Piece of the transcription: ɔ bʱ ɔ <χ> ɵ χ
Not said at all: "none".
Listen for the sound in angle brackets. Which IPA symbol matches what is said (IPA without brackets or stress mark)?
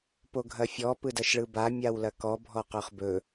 q